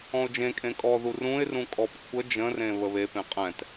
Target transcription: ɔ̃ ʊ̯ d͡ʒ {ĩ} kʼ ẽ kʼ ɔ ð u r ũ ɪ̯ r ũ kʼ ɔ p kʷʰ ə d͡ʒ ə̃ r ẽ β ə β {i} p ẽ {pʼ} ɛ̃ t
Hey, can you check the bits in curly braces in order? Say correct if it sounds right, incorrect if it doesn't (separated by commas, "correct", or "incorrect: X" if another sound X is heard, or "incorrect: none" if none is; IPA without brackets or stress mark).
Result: incorrect: ẽ, incorrect: e, incorrect: qʼ